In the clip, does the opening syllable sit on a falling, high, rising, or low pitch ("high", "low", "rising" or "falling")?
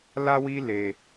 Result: high